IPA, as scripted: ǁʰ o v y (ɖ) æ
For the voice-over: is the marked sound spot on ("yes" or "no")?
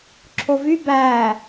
no